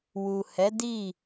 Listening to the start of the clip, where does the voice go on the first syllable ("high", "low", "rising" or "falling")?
low